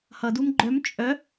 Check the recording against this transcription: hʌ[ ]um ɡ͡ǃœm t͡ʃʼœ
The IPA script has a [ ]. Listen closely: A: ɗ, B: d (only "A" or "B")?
B